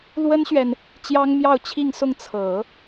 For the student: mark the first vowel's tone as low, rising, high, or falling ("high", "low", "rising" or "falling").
high